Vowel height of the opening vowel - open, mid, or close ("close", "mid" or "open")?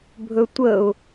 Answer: mid